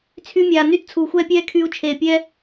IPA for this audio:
t͡sʰ y˧ mʲ aː˨ n y˦ t t͡sʰ uː˨ xʷ ɛː˦ pʲ ɛː˦ kʰ yː˧ u̯ t͡ʃʰ eː˨ pʲ ɛː˦

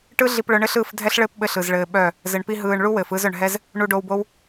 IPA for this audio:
ʈ ɯ˦ ɮ i˧ p ɭ œ˧ ɳ ɘ˦ ɬ ɯː˦˨ f dʱ ɛ˦ ɬ ɭ ɘː˦ p ɓ ɘ˧ ɬ ɯ˨ z ɭ ɘː˧ ɓ œ˦˨ | z ɘ˨ ɳ p i˧ ɦ ɯː˨ ɳ ɭ u˦ w ɘː˨ f ɯ˦˨ z œ˨ ɳ ɦ ɛ˦ z | ɳ u˧ ɖ o˧ w b o˦ w

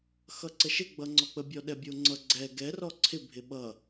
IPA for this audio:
x ʌ ǀ ə ʃ ɪ ɡ͡b ʌ ŋ͡ǀ ɔ k͡p ə bʲ ɔ ɗ ɛ bʲ o ŋ͡ǀ ʌ ɡ͡ǀ ɛ ɡ ɛ r ɔ ǀʰ ɪ bʱ ɪ ɓ ʌ

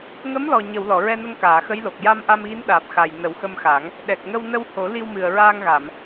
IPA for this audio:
ŋ ə˧˥ m l ɔ˨˩ ɲ ə˨˩˨ w l ɔ˨˩˨ ɹ ɛ˧ n ə˧ ŋ k aː˨˩˨ x ə˧˥ j l o˨˩ k̚ j a˧ m ʔ a˧ m ɣ i˧˥ n ɗ aː˨˩ p̚ x a˨˩ j n ə˨˩˦ w x ə˧ m x a˨˩˦ ŋ | ɗ ɛ˨˩ k̚ ŋ ə˧ w n ə˧ w h o˨˩˦ l i˧ w m ɨ˨˩ ə̯ ɹ aː˧ ŋ ɣ a˨˩˨ m

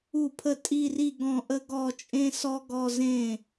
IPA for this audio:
u˥˩ pʰ ə˥˧ tʼ i˥˧ r i˥˧ ɡ ɔ̃˥˧ ʔ ə˥ ɡ ɔ˥˧ t͡ʃʼ ẽ˥ s ɔ˥ ɡ ɔ˥˧ z ẽ˥˩

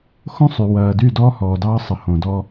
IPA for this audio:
x õ˦ sˤ y˨ w ɐː˨ d y˦˨ d ɔː˦ h ɔː˨ d ɑː˦ sˤ ə˨ h õ˨ d ɔ˦

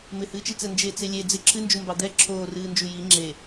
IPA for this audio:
m ɪ h ɨː t͡ʃ i t͡s ɛ n d͡ʒ e t͡s e lʲ e d͡z ɪ ǁʰ ɨ n d͡ʒ u m b ɑ d̪ ɛ ǁʰ oː r ɨː n d͡ʒ u j i ŋ͡ǁ e

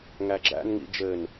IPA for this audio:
ŋ æ ɡ͡ǁ æ̰ n ŋ ḭ d͡ʒ ɘ n

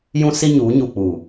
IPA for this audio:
j ũ˦ s i˦ ɲ uː˨˦ ɲ u˨ k͡p u˨

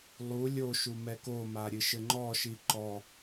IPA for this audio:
lˠ u lʲ o ʃ u m ɛ k o m a ɾʲ ɨ ʃ ɘ ŋ͡ǃ ɔ ʃ i ǃ ɔ

